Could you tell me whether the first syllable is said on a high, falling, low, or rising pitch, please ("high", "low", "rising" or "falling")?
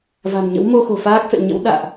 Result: low